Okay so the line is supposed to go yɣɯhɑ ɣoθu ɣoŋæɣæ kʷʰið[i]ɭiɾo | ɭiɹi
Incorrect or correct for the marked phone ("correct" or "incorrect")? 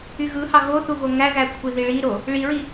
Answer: correct